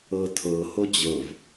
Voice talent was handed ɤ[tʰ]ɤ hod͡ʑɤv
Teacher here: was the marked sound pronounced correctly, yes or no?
yes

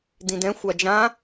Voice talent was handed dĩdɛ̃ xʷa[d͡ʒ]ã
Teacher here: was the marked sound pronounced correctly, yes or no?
yes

